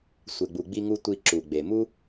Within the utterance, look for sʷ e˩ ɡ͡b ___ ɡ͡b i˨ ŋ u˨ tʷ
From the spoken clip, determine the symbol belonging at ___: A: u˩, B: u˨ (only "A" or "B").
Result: A